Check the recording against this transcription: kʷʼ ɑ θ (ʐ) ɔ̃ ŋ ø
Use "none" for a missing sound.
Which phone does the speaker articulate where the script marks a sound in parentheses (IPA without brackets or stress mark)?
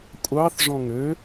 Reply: ʐ